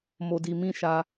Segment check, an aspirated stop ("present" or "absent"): absent